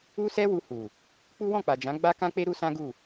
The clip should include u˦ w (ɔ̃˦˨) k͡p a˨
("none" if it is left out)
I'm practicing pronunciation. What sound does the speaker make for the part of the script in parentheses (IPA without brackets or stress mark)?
ɔ̃˦˨